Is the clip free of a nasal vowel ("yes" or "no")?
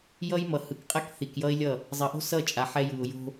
yes